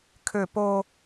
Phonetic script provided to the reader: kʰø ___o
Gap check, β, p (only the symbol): p